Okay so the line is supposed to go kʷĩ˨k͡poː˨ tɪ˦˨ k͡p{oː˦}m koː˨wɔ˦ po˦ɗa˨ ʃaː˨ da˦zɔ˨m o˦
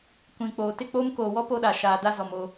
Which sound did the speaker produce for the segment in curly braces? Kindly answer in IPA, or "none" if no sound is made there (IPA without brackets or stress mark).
oː˦